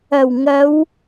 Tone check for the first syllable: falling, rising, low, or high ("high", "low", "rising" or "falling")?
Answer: low